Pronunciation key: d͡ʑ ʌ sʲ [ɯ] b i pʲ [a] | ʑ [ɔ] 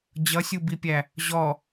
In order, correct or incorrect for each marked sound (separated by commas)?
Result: incorrect, incorrect, correct